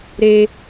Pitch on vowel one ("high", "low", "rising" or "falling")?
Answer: high